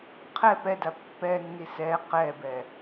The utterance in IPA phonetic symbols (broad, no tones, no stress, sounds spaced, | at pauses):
qʰ ɛ p ɛ d a pː ɛ nː i s ɛ q ɛ b ɛ